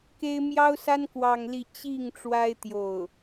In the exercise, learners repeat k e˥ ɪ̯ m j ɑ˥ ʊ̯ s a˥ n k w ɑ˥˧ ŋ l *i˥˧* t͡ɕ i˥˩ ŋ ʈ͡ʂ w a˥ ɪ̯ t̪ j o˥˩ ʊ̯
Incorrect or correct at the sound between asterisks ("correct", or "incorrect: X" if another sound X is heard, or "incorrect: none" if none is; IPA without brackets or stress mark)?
correct